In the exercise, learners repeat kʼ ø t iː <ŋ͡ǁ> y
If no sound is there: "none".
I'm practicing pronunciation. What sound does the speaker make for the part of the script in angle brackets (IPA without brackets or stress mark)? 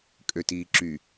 ǁ